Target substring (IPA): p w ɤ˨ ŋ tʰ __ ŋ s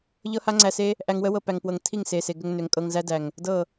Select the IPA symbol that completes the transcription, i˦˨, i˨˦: i˦˨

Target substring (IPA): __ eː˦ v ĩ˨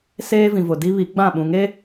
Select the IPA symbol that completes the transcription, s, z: s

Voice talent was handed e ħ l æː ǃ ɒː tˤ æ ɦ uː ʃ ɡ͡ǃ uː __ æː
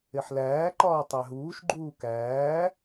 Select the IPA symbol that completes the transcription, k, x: k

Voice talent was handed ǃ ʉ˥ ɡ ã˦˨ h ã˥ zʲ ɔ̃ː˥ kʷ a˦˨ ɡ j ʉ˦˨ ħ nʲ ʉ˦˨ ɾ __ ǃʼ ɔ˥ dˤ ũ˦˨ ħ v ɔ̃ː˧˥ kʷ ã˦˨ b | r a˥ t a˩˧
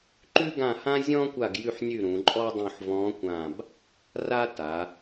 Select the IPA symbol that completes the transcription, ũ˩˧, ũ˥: ũ˩˧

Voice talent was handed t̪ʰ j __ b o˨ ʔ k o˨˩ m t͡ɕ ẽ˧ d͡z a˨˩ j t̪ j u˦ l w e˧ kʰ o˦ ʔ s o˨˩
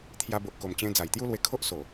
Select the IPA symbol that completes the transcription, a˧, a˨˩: a˧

